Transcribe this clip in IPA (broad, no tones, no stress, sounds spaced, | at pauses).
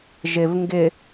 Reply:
ʒ ɪ v ŋ ɡ ɪ